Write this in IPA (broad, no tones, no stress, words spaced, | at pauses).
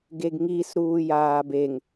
ɡeɡŋis ɾuːjaːbeŋ